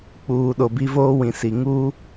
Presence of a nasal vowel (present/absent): present